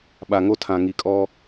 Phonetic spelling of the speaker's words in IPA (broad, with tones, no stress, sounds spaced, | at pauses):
ɓ a˨ ŋ o˦ tʰ ã˨ ŋ i˨ kʼ ɔ˦